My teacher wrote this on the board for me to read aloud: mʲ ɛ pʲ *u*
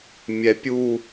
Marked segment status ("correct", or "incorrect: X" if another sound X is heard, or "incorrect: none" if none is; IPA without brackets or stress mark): correct